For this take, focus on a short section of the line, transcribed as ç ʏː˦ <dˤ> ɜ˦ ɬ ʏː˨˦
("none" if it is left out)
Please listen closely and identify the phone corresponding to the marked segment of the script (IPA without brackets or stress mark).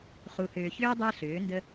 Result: dˤ